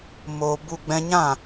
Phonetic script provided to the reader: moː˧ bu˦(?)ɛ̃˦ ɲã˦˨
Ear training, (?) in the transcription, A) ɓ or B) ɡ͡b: B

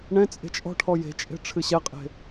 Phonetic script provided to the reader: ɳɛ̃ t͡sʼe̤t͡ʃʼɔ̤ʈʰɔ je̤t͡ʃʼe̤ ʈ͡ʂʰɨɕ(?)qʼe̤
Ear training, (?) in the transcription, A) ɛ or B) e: A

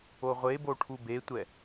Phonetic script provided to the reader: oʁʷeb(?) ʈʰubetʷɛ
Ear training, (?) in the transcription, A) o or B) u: A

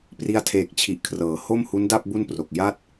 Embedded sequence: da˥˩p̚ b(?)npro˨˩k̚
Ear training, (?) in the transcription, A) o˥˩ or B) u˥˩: B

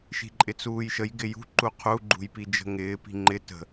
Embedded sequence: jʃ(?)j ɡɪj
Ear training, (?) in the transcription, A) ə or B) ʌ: A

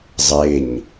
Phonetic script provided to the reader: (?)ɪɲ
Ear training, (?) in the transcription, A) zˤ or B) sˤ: A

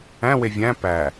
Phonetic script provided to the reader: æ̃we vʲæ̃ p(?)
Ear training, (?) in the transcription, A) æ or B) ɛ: A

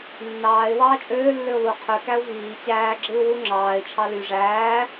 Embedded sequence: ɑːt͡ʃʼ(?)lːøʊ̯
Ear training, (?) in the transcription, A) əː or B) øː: B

